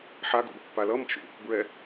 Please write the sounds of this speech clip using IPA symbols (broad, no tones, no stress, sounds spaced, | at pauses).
ħ a ɡ ṵ b ə pː a l ʌ m ɔ̰ ʃ ṵ | b ɹ ɛ